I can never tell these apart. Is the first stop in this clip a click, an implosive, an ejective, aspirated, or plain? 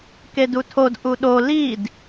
plain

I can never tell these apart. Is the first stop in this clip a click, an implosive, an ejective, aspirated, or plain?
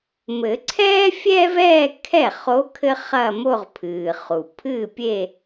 click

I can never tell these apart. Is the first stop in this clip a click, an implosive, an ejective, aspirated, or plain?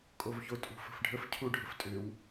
ejective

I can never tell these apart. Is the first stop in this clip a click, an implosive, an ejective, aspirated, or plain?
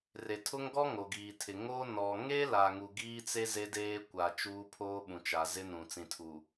aspirated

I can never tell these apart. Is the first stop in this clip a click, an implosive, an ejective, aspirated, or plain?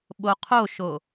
implosive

